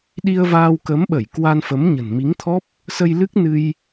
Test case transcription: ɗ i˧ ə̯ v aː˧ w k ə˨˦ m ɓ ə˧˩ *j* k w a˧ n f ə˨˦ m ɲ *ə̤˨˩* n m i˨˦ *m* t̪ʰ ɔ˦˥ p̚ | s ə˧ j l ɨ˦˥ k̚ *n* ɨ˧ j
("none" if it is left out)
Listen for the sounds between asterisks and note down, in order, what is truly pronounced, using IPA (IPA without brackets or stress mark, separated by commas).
j, ə̤˨˩, ŋ, n